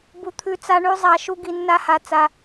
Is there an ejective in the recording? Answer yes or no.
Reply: no